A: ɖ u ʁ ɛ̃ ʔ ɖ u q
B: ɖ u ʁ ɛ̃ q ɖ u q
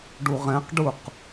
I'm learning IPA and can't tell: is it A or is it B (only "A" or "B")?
B